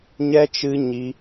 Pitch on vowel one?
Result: high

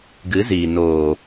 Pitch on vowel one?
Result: rising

